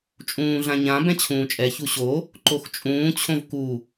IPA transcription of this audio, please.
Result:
t͡ʃʼ ũː ɮ ã ɲ ã b ɛ̃ t͡ɕʰ ũː t͡ʃʼ ɛ ç u ɕ o | ǃ o x t͡ʃʼ ũː t͡ɕʰ õ v k u

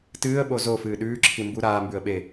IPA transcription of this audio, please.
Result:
t ɨː ə̯ ɓ o z o f ɨː ɗ ʉː ǁʰ i m b u ɾ aː m b ʉ ə̯ ɓ e

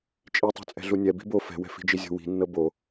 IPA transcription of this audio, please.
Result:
t͡ʃʼ i tˤ ṳ t͡sʼ ɛ̤ ɮ u nʲ ɛ b i̤ b o f ɛ̤ w ɛ̤ f i̤ d͡ʒ i zʲ o̤ w i̤ nː ɤ b o

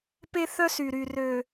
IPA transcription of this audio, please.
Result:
p e˦ θ œ˦ s y˨ ɾ y˨ r ø˨

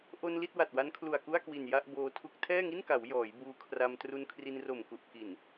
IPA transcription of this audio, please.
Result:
ʔ o˧ n l i˥˩ t̚ w a˨˩ t̚ w a˦˥ n kʰ l u˨˩ a̯ k u˥˩ a̯ k w i˨˩ n j a˥˩ ʔ b oː˧ tʰ u˦˥ k̚ tʰ ɛː˥˩ ŋ i˥˩ n k a˩˦ w j ɔː˩˦ j b uː˧ kʰ r a˧ m t r u˧ n kʰ r i˧ n r o˨˩ m k u˨˩ ʔ k i˨˩ n

